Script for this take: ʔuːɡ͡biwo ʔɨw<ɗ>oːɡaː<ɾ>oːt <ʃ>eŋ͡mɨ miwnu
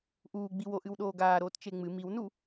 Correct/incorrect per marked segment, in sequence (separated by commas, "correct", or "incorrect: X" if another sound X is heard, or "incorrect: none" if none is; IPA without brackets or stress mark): correct, correct, incorrect: t͡ʃ